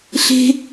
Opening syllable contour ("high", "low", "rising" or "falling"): high